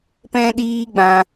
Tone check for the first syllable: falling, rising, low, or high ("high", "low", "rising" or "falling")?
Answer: high